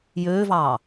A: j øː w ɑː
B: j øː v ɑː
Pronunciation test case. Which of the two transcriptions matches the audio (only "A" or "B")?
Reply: B